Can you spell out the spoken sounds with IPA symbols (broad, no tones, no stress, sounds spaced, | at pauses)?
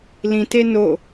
l ĩ t e n o